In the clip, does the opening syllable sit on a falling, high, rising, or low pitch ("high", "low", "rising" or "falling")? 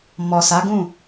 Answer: low